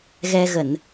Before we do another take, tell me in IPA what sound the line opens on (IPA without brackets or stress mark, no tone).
ɣ